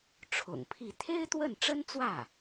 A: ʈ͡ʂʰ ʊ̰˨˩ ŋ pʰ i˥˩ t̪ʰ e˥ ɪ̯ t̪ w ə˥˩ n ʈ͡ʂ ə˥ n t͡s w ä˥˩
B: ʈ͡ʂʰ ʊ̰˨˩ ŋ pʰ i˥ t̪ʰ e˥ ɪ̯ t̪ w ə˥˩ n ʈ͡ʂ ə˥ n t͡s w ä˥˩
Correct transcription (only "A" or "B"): A